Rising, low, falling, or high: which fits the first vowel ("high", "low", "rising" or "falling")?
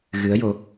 rising